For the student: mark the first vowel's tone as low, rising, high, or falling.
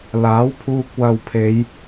rising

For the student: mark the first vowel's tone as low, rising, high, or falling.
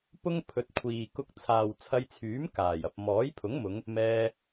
high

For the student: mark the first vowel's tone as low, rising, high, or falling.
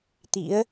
rising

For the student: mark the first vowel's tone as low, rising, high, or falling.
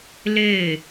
falling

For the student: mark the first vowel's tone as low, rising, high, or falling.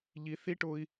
low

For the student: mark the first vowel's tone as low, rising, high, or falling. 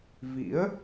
rising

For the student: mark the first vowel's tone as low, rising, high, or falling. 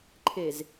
low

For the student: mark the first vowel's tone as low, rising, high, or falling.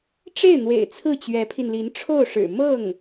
falling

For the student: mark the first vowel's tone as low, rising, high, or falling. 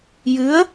rising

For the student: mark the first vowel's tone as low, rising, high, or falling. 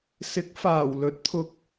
rising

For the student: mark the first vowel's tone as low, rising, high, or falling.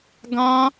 high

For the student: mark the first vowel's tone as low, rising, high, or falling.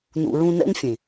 low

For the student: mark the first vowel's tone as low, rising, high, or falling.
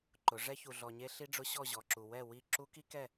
rising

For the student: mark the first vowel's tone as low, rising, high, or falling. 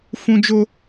high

